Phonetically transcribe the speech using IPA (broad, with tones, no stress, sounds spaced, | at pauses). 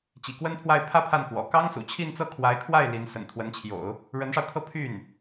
t͡ɕ ḭ˨˩ k w ə˥ n pʰ w a˥˧ ɪ̯ pʰ ä˥˧ pʰ a˥˩ n k w ɔ̰˨˩ k ɑ˥ ŋ s ṵ˨˩ t͡ɕʰ i˥˧ n t͡s ɤ˥˩ kʰ w a˧˥ ɪ̯ kʰ w a˥˩ ɪ̯ l i˧˥ n s ə̰˨˩ n t̪ʰ w ə˧˥ n t͡ɕʰ j o̰˨˩˦ ʊ̯ | ɻ ə˧˥ n ʂ ɑ˧ ʊ̯ kʰ ɤ˥˧ pʰ y˥˩ n